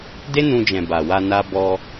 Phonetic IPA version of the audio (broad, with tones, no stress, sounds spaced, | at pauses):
d e˦ n ũ˧ d͡ʒ ɛ̃˨ b a˨ w a˧ n a˧ b ɔ˧